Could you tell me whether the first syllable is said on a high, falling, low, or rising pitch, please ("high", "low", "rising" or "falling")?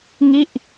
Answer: falling